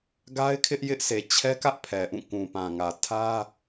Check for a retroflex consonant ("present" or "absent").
absent